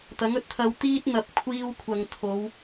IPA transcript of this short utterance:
t̪ ɐ˨˥ ŋ ɵ˧ t̚ t̪ʰ ɐ˧ w t̪ iː˥ t̚ n̪ ɐ˨˥ p̚ kʷʰ iː˧ w kʷʰ ɐ˨ ŋ t̪ʰ o˨˧ w

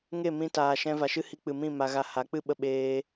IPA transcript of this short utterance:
ŋ e˦˨ m ĩ˧ t aː˨ ʃ ɛ̃˧ v a˨ ʃ ɨ˦ h i˧ k͡p ɨ˨ m ĩ˦˨ m a˧ ɣ a˧ h a˨˦ k͡p ɨ˦ ɓ ə˧ ɓ eː˧

